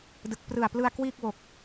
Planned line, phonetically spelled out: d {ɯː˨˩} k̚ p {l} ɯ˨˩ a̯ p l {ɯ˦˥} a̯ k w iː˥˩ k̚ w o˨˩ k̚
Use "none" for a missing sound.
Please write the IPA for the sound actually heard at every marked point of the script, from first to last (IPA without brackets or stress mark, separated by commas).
ɯ˨˩, r, ɯ˧